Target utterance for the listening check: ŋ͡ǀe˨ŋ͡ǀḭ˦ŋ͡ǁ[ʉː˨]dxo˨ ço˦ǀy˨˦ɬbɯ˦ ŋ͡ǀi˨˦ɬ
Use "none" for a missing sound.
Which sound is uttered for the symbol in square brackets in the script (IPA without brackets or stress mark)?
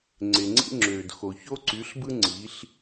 øː˨